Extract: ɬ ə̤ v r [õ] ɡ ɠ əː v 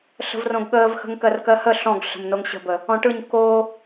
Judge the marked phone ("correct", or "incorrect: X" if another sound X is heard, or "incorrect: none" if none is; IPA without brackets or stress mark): correct